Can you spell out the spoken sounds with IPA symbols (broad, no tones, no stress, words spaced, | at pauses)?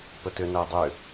pətʏnæ dˤʏ